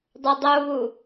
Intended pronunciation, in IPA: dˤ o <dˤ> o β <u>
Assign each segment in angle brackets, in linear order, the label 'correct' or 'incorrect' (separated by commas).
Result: correct, correct